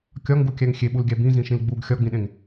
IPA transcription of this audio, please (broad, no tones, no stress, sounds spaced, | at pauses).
kʲ ɒ ŋ ɡ u kʲ æ ŋ xʲ e ɓ u l ɡʲ æ b ĩ z ĩ ʃ ĩ l ɡ͡b u ɡ xʲ ɒ ɡ͡b ĩ ɗ ẽ ŋ